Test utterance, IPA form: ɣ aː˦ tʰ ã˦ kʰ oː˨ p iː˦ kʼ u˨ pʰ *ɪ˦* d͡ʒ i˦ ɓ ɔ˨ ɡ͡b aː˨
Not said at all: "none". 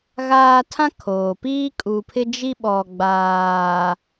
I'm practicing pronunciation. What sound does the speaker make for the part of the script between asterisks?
ɪ˦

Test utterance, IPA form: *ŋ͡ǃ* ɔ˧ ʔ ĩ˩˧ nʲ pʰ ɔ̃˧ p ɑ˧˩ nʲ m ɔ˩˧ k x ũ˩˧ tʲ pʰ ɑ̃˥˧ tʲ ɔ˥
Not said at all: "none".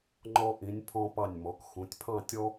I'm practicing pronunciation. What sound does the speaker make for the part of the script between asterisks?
ŋ͡ǃ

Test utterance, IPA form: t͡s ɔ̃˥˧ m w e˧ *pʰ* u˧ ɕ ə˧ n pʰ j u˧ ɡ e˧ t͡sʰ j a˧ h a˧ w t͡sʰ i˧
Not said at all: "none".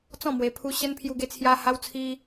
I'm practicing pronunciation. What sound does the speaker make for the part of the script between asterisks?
pʰ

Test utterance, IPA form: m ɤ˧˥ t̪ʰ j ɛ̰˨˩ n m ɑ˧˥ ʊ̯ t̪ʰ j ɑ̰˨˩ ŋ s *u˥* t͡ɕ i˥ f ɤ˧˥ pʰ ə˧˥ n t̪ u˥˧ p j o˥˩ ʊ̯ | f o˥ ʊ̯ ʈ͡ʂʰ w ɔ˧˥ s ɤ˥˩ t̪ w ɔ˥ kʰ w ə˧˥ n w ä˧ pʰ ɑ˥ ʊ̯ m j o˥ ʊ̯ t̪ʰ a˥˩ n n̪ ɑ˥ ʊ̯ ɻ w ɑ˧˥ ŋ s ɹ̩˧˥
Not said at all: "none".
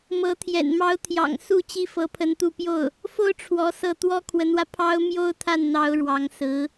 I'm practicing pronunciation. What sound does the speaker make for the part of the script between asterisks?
u˥˩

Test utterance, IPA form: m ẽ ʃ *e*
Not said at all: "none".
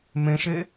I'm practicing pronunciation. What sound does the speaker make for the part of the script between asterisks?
e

